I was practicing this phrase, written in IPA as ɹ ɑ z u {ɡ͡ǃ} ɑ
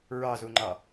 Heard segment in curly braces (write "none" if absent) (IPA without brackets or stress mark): ŋ͡ǃ